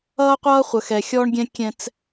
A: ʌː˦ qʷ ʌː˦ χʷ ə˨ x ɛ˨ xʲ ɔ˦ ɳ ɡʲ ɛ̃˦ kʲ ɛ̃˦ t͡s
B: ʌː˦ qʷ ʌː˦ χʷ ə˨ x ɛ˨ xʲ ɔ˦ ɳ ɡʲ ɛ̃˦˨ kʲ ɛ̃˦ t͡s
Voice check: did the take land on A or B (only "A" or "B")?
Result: A